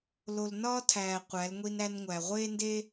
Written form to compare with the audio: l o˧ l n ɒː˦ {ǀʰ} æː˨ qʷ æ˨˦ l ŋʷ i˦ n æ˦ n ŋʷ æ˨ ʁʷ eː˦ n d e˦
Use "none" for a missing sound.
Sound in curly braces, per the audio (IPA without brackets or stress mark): tʰ